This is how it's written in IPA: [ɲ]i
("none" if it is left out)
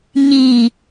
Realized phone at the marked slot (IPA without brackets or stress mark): ɲ